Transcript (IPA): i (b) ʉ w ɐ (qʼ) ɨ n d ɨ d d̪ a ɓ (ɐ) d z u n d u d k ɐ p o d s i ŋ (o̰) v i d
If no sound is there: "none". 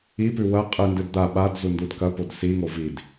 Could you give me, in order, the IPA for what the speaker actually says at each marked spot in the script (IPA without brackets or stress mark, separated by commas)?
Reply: p, qʼ, a, o